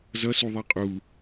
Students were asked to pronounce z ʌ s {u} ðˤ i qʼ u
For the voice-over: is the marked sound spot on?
yes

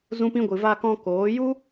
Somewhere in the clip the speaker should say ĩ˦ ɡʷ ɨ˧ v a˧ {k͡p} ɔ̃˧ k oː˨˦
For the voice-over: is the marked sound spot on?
no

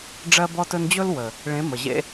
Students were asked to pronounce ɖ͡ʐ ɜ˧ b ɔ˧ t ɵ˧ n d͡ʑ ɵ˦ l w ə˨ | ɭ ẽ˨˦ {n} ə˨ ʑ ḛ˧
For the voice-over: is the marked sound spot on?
no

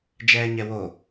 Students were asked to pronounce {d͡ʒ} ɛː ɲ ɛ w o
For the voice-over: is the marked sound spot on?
yes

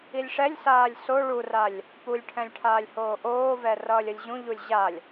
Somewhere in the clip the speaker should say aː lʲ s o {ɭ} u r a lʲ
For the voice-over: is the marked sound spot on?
yes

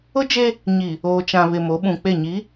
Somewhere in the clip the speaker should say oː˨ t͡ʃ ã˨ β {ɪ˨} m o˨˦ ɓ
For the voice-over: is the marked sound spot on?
yes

